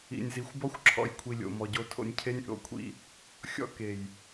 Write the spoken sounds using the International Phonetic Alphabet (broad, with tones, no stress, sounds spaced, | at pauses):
ḭ˨ nʲ z i˨ xʷ b ɔ˦ xʷ ǁʰ ɔ̰˨ j kʷʰ i˨ lʲ o̰˨ m ɔ˨ ɟ o˦ tʰ o̰˦ nʲ cʰ e˦ nʲ ʔ o̰˨ kʷʰ ḭ˦ | xʲ ɔ̰˦ k e˨ j